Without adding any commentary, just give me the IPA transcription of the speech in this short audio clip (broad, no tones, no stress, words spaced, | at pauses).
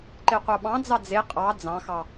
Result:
ǃeqʷɑɓɑ̃d͡zɑ d͡ze qʼɑ d͡zɑ̃xɑ